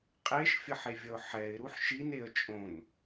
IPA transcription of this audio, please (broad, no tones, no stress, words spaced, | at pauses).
qʼeʃfʲʌħevʲʌʊ̯ ħɛɪ̯ɾuħ ʃineə̯ t͡ʃʼõn